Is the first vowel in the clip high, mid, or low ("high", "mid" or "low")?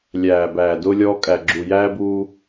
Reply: low